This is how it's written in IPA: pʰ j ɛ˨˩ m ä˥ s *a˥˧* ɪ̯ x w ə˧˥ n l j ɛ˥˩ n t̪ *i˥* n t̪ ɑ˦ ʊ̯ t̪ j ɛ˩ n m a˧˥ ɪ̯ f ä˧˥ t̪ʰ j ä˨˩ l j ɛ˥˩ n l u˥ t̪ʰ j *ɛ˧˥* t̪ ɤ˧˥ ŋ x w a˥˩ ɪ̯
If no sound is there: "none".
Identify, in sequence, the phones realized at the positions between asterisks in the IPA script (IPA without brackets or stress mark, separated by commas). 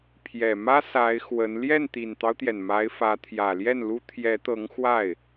a˧˥, i˨˩, ɛ˧˥